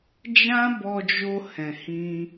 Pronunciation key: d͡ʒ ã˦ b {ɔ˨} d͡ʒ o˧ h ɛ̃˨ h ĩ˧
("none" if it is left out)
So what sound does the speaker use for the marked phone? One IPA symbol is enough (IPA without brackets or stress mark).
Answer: ɔ˧